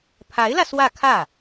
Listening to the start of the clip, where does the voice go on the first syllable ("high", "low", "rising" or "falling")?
rising